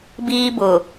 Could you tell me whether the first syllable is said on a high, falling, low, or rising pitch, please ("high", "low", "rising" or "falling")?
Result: high